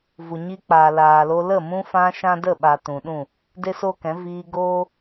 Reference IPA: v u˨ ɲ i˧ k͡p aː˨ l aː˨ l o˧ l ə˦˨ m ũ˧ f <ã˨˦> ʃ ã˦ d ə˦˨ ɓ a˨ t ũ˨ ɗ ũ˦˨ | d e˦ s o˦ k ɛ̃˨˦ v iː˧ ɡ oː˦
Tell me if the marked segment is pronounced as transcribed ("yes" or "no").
no